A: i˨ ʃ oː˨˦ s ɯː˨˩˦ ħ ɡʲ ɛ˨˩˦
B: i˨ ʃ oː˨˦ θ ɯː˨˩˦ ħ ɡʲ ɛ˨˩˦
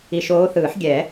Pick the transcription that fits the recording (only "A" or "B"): B